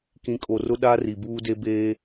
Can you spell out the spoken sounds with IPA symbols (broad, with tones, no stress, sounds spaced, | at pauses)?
k ĩ˨ kʼ o˨ r ʊ˦ ɗ a˦ r i˨ b uː˦ d e˦ b eː˦